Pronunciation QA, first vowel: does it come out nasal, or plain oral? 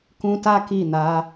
nasal